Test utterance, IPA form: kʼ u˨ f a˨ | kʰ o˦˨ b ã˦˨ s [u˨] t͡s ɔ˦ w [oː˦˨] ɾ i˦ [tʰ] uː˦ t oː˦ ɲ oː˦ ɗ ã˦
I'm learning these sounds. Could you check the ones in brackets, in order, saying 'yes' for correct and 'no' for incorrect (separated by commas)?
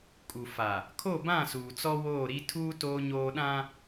no, yes, yes